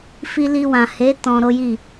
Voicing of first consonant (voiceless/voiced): voiceless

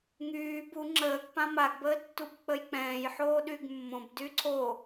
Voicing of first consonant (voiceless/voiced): voiced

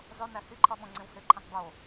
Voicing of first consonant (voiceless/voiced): voiced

